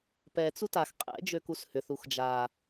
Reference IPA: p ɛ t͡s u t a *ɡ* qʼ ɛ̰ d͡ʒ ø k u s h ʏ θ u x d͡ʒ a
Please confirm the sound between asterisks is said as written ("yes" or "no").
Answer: no